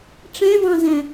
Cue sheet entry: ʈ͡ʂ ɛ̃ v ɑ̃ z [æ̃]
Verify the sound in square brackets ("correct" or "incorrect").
correct